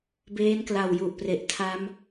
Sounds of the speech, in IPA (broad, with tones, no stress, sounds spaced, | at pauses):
b eː˦˥ n k l a˨˩ w j u˨˩ ʔ p r e˨˩ ʔ tʰ a˦˥ m